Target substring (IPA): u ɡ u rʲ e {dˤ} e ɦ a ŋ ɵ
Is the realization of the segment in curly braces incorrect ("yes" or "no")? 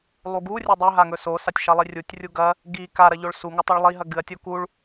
no